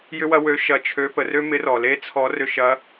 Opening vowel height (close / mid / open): close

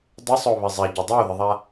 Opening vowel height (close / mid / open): close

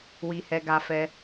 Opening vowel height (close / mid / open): close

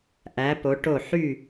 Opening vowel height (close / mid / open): open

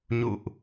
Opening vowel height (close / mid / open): close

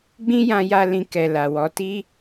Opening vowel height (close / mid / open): close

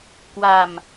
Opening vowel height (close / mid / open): open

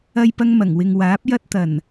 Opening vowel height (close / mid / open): open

